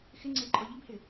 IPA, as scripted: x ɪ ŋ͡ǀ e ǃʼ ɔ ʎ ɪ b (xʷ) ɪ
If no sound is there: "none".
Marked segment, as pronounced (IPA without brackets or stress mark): h